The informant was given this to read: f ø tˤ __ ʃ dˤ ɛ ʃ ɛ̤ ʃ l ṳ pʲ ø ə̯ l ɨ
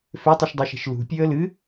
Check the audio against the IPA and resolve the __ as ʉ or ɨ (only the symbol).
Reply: ɨ